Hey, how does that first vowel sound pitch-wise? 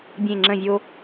falling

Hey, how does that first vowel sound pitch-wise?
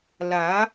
rising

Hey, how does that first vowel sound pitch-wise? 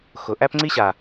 low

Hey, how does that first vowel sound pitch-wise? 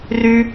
high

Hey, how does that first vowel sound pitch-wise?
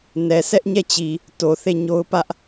low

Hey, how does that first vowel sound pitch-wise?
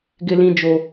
high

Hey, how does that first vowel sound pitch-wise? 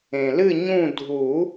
low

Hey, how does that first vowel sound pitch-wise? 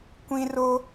high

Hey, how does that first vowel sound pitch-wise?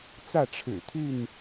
falling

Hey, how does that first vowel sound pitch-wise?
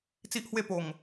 high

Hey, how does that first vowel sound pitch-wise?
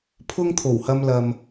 high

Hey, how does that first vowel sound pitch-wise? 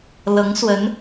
rising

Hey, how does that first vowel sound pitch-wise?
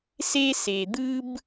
high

